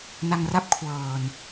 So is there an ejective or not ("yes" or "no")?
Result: no